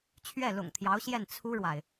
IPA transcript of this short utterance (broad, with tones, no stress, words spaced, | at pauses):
t͡ɕʰɥɛ˥˩lʊ̰˨˩ŋt̪ʰjɑ˧˥ʊ̯ɕjɛ˥˩n t͡sʰu˥ɻwa˨ɪ̯